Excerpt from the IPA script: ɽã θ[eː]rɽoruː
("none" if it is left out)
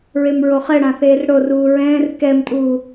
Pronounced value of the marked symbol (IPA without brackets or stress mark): eː